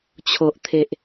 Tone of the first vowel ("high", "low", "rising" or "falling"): low